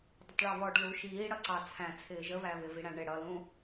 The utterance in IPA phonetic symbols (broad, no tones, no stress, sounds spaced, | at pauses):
dˤ ə tˤ ɭ ɛ β ɔ ɖ l u ʃ iː ɽ ʌ ǀ ɑ t͡sʰ æ̃ t͡sʰ ɪː ʒ ə β æ β ɪ v i ɽ æ̃ ɳ ɪ ɽ ʌ l ũ